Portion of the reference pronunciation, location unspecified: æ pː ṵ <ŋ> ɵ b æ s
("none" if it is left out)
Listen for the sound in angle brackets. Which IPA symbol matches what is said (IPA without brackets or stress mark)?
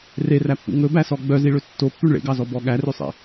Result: ŋ